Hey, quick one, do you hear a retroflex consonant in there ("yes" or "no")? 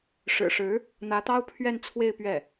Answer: yes